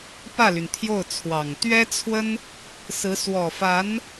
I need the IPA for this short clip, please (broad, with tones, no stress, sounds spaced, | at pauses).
p ä˥˩ l y˩ n t̪ʰ j o˥˩ ʊ̯ t͡sʰ w ɑ˨˩ ŋ t̪ ɥ ɛ˥ t͡sʰ w ə˥ n | s ɹ̩˧˥ s w ɔ˨˩ f a˧˥ n